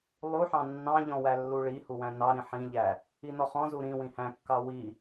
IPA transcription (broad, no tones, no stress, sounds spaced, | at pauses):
lˠ u ħ ɑ̃ nː ɑ̃ ʎ ɔ̃ w æ lː u ɭ i h u w æ̃ n ɑ ɾ ĩ ħ ĩ ʎ æ | i n ɔ χ ɔ̃ z u ɾ ĩ w ĩ h æ̃ kː ɑ w i